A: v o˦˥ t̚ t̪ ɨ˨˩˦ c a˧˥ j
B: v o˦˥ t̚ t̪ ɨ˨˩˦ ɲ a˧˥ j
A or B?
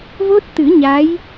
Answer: B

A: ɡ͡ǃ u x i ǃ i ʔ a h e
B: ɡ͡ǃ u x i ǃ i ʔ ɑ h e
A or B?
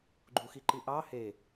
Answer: B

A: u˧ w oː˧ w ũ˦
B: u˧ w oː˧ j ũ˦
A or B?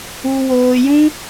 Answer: B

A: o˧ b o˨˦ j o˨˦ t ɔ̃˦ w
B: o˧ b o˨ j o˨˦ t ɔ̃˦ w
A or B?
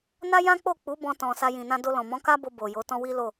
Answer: B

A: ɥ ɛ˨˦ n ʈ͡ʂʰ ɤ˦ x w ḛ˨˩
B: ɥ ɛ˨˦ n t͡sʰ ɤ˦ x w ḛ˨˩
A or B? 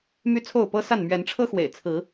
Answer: A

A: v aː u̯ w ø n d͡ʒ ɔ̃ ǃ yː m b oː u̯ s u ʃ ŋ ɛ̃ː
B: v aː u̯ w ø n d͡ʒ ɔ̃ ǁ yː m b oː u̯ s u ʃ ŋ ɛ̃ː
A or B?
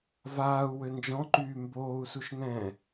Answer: A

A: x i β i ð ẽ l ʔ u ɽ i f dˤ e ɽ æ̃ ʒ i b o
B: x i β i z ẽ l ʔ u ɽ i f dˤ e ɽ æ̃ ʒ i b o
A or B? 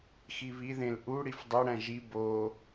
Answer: A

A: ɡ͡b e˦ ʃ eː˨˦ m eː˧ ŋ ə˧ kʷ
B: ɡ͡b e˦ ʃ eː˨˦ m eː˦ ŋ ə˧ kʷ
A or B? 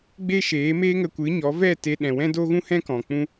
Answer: B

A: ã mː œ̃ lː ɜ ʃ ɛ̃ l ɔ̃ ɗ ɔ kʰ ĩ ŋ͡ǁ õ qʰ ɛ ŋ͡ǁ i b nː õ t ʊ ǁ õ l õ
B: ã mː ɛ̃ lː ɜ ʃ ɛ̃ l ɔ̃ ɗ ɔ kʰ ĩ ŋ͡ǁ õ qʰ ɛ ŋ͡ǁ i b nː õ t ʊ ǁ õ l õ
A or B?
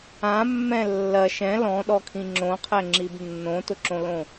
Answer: B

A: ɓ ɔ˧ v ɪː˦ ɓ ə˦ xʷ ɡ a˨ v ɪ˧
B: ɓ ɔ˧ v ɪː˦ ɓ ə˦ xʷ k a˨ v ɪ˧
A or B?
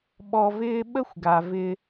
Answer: A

